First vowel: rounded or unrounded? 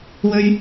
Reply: rounded